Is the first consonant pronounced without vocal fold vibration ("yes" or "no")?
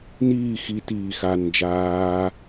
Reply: no